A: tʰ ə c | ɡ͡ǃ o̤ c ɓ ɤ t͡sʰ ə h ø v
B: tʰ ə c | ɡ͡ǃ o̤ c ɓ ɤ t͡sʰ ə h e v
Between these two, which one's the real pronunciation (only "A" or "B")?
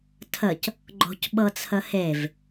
B